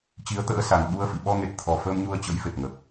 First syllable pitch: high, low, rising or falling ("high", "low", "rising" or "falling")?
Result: rising